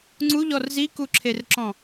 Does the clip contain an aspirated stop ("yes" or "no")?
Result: yes